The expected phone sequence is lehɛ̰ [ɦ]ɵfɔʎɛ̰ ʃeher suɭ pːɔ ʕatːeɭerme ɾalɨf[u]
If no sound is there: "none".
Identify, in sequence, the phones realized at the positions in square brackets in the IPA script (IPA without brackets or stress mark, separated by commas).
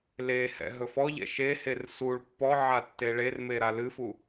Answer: ɦ, u